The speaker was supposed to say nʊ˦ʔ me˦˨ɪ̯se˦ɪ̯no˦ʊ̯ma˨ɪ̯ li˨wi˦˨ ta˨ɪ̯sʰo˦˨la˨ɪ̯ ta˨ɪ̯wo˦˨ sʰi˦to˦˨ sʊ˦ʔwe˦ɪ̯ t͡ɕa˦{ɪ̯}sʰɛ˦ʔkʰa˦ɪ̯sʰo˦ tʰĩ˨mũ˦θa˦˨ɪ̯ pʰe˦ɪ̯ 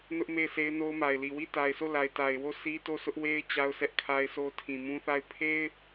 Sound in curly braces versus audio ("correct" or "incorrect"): incorrect